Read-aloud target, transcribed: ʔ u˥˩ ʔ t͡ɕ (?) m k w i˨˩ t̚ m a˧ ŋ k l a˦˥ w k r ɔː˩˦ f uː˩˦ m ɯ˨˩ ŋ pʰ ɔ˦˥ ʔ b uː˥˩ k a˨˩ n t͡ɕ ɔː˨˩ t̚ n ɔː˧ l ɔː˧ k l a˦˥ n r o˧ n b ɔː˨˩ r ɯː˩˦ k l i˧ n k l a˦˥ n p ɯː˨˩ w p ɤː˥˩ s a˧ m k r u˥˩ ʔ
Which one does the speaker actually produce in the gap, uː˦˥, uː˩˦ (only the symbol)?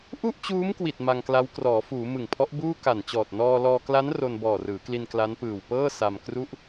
uː˦˥